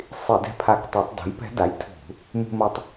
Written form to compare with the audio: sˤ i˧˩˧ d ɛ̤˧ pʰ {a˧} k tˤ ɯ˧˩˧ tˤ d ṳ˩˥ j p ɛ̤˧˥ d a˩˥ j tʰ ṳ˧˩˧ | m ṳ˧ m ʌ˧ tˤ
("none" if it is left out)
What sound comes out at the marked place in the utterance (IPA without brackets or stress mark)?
a˧˩